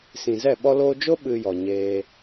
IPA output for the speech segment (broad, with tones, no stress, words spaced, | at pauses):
sĩ˨zɛ˦˨ ɓɔ˧loː˧d͡ʒo˦ ɓɨ˧jɔ˨ɲeː˧